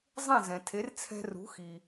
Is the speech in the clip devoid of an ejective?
yes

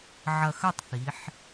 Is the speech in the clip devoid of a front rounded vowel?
yes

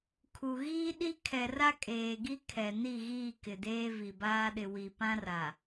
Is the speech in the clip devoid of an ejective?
no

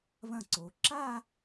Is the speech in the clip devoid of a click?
no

